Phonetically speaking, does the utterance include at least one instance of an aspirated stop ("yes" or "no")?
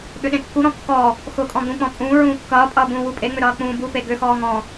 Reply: no